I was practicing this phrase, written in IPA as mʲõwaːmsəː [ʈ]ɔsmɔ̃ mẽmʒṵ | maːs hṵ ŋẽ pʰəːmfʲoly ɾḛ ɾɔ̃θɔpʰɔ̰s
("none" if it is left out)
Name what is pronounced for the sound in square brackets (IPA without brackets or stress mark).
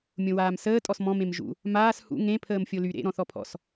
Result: tʼ